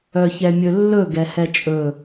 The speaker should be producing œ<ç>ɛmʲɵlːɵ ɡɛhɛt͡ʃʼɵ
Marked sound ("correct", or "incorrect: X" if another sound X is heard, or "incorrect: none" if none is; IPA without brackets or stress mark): correct